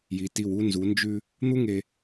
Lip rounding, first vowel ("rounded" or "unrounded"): unrounded